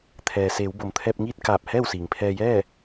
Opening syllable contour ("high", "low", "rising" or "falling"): low